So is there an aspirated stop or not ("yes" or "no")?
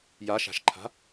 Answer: yes